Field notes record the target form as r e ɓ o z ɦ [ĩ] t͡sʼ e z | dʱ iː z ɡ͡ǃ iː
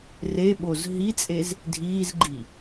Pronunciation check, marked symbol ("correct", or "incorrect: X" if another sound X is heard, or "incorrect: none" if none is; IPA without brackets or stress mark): incorrect: i